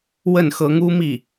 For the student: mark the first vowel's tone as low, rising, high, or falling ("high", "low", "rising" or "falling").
falling